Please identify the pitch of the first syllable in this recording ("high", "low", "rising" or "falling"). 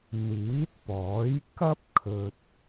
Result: rising